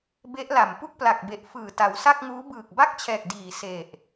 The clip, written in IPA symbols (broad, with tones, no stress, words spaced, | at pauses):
be˦˥ʔla˨˩m pu˥˩k̚pla˨˩k̚be˨˩ʔ fɯː˨˩ta˩˦wsa˥˩k̚ŋuː˦˥ bɯː˨˩k̚ba˥˩k̚t͡ɕʰɛː˨˩k̚ diː˨˩se˨˩ʔ